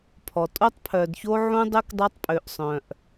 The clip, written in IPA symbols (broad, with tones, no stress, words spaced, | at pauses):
pʰɔ˨tʼo˦tˤ pʰœ˨dço˦ ʕũ˦ dˤø˦k dˤœ˦tˤpʼø˨ʔsˤœ̃˨ʔ